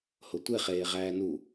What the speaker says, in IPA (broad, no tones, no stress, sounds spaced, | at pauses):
h o tʷ e χ eː ʁ æː n u